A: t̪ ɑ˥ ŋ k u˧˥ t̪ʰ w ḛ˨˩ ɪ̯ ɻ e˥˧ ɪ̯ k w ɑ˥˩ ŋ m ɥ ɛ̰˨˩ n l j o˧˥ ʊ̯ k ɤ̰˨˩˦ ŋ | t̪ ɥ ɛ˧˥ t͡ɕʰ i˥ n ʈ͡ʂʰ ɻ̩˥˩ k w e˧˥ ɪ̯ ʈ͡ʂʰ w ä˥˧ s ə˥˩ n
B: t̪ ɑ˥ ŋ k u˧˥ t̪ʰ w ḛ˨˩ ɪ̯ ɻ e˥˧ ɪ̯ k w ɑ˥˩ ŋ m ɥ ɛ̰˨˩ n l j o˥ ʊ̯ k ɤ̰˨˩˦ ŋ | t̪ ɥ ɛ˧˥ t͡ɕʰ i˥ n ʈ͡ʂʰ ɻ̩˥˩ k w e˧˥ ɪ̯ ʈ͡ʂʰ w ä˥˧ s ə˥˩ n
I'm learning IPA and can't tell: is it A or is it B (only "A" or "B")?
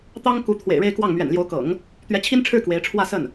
A